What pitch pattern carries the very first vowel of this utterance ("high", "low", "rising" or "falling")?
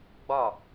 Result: falling